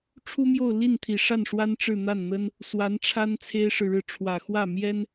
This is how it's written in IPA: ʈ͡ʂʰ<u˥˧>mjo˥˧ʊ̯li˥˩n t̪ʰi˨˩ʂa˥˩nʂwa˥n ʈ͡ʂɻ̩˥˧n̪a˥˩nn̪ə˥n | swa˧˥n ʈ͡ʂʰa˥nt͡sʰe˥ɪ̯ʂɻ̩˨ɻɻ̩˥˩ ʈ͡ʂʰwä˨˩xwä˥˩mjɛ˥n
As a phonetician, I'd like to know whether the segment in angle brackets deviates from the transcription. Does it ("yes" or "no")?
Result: yes